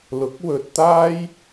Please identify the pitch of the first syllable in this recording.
rising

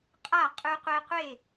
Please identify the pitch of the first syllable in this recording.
falling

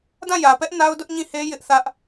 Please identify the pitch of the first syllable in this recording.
falling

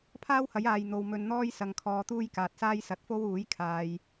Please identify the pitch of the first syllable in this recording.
high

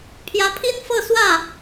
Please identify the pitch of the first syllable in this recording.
rising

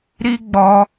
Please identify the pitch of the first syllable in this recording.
high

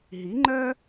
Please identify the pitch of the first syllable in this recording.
rising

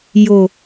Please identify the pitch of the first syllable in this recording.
low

